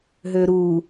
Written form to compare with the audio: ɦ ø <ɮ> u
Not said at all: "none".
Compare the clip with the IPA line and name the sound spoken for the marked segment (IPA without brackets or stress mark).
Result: ɾ